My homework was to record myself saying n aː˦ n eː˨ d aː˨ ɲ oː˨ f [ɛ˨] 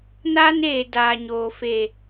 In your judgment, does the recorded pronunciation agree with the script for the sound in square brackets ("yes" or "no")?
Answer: no